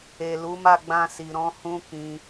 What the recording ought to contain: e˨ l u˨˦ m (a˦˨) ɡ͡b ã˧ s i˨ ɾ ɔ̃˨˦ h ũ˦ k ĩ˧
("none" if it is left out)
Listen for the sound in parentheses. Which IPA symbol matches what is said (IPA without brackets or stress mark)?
a˦˨